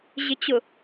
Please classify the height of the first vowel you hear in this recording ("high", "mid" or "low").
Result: high